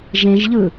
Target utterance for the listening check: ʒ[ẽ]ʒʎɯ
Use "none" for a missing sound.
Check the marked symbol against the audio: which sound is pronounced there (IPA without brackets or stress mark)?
ẽ